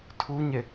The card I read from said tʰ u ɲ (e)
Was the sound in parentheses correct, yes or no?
yes